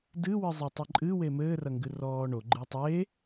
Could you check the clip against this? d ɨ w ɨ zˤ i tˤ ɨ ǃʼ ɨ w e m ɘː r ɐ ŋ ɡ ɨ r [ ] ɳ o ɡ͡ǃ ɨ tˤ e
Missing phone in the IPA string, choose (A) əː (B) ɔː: B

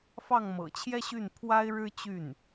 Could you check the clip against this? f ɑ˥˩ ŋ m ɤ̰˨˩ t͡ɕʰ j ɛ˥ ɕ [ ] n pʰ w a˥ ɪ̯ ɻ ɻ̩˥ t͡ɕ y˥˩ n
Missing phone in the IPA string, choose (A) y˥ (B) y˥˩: B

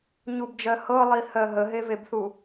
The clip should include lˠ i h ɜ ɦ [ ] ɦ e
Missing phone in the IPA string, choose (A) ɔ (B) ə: B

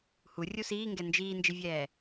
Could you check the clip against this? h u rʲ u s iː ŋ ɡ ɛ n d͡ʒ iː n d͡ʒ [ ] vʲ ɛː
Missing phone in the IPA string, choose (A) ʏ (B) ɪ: B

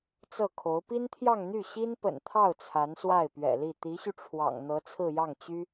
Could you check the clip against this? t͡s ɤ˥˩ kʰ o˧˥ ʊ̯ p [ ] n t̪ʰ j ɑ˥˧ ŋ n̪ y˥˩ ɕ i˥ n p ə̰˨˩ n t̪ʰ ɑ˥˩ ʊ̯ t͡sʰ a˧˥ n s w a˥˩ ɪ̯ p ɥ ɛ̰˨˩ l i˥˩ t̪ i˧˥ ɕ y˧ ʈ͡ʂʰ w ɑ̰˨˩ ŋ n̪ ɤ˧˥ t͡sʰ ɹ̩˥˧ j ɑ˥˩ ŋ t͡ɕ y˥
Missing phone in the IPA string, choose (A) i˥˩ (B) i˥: B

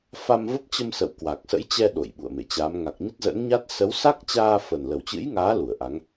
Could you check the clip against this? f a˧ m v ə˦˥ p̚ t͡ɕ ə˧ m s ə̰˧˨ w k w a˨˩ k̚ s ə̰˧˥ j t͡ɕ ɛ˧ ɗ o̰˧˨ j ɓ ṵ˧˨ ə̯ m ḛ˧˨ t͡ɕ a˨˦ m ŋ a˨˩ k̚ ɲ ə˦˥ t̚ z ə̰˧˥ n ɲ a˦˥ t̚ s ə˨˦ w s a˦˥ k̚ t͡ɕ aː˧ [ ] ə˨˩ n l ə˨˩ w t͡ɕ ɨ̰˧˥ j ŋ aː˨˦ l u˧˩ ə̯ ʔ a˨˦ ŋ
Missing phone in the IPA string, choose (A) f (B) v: A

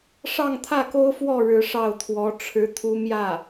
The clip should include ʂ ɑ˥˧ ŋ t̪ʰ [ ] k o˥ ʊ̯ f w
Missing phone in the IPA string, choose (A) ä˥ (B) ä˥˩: B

